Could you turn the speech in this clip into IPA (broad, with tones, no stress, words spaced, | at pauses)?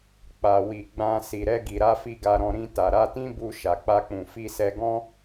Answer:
k͡pa˨wi˨ ɡ͡bã˧ si˨ɾɛ˧ ɡi˨ɾa˧fi˧ ɡa˧ɾɔ̃˧ ɾĩ˧ ta˨ɾa˧tĩ˦ bu˧ ʃa˨k͡pa˧k͡pũ˨ fi˧sɛ˧ɡɔ̃˦